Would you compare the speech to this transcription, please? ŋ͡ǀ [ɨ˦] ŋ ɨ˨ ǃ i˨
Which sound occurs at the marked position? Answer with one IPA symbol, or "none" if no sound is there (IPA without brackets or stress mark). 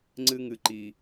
ɨ˦